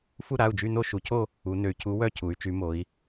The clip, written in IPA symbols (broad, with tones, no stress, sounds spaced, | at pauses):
f u˦˨ ɾ a˩˧˩ u̯ d͡ʒ y˦˨ n o˦˨ ʃ u˩˧ cʰ o˦˨ | u˩˧ n ø˩˧ y̯ cʰ u˨˥ w œ˦˨ cʰ u˩˧ y̯ t͡ʃ y˩˧ m o˩˧ i̯